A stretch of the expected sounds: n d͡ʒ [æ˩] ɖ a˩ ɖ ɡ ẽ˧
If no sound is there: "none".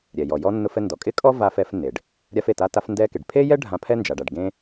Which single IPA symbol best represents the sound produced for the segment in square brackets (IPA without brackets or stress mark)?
a˩